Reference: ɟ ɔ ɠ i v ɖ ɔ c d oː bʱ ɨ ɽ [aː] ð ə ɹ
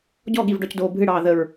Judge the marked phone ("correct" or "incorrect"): incorrect